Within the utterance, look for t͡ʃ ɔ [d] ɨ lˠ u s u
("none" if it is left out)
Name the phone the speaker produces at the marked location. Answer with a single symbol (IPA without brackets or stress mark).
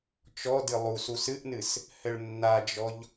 d